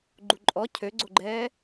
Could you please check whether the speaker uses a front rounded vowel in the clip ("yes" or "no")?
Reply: yes